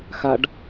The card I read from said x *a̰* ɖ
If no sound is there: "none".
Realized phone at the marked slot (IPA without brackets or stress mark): a